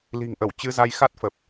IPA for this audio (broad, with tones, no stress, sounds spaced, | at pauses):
l i̤˨˩ ŋ ʔ ə˧˩ w t͡ɕ ɨ˧ z a˧ j x a˦˥ t̚ f ə˨˩ p̚